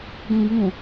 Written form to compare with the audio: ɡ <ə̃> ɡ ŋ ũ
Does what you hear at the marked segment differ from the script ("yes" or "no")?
no